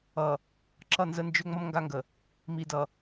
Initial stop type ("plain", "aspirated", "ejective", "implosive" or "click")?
click